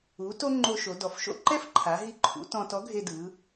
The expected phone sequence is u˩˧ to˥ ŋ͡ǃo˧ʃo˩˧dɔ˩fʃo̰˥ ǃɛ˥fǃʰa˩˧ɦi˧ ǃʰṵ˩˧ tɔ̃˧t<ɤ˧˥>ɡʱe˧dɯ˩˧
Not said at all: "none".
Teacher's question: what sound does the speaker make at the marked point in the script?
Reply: ɔ˧˥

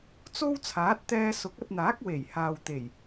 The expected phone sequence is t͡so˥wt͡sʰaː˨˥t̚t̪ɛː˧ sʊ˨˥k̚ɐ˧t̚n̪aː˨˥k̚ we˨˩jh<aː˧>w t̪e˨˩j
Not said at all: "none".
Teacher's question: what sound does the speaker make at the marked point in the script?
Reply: aː˨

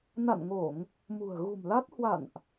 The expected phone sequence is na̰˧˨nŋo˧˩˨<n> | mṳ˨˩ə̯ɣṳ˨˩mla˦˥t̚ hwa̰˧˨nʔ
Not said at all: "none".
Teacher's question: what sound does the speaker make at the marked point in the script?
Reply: ŋ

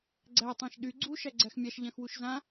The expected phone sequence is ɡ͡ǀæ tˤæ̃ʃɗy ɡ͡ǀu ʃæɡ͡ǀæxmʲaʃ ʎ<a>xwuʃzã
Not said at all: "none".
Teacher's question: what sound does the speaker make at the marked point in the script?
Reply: ã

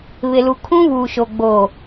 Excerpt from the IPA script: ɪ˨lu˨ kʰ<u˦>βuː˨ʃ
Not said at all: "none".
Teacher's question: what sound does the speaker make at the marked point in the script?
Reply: ũ˦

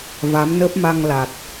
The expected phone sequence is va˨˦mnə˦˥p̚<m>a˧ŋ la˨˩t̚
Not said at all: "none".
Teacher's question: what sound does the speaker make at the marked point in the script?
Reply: m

